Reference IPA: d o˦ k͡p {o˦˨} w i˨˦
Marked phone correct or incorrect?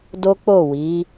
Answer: correct